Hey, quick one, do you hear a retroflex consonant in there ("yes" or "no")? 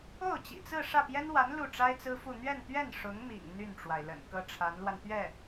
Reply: yes